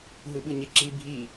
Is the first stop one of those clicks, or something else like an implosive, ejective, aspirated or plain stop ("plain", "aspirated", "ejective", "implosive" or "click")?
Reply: implosive